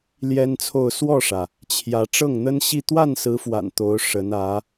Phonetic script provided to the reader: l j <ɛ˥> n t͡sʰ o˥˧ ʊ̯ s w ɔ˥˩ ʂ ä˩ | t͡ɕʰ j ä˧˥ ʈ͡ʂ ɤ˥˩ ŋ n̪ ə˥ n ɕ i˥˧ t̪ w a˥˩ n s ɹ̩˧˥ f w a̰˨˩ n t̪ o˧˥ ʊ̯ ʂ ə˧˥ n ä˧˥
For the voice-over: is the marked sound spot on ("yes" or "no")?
yes